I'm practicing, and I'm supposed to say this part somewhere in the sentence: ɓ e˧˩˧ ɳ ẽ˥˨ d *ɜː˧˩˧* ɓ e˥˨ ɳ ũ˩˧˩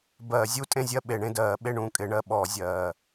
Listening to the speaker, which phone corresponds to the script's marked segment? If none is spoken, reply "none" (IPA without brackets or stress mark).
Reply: ɜː˧˩˧